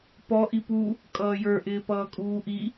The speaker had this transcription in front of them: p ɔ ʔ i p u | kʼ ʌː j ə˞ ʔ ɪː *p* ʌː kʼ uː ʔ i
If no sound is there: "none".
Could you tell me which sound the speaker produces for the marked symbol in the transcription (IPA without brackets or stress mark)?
p